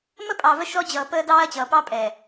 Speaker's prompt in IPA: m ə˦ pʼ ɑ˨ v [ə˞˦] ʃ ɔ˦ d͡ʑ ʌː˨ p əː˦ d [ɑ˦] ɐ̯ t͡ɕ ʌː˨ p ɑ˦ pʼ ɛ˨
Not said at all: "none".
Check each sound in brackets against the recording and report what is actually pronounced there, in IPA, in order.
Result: ə˦, ɑː˦

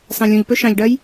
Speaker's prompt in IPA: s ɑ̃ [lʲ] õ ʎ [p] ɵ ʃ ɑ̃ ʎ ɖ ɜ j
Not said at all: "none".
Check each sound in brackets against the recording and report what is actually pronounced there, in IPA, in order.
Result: lʲ, p

